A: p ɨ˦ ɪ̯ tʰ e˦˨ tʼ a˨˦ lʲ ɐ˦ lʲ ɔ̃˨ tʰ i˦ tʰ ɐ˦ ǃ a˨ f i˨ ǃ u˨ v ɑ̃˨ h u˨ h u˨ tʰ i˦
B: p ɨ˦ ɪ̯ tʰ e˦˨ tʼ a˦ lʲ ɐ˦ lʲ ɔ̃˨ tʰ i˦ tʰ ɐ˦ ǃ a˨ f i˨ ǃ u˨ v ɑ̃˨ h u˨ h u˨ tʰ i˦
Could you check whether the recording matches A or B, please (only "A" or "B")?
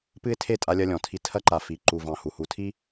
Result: B